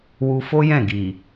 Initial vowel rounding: rounded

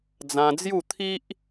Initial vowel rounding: unrounded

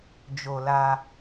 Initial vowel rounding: rounded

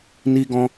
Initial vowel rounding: unrounded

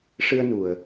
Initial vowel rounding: unrounded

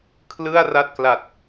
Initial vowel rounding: unrounded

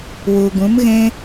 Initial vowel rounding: rounded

